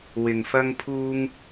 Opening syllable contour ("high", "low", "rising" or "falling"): low